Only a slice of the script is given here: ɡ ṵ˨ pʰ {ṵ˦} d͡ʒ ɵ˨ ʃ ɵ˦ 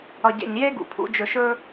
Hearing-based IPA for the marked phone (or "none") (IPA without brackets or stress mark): ṵ˦